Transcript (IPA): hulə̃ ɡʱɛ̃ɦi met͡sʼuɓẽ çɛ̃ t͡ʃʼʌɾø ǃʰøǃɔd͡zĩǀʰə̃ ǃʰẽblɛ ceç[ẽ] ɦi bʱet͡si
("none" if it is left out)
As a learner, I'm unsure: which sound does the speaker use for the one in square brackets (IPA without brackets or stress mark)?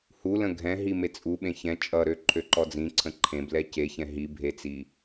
ɛ̃